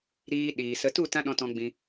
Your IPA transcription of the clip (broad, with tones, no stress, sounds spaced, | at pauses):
ɾ iː˧ ɗ iː˨ s ə˧ t u˦˨ t ã˦ ɗ ɔ̃˧ t ɔ̃˧ ɡ͡b ĩ˧